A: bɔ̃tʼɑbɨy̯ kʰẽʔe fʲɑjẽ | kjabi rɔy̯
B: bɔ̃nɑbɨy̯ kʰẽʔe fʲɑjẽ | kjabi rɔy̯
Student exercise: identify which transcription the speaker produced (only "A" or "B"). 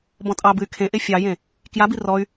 A